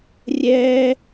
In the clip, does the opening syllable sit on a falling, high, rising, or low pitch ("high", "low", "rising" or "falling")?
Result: high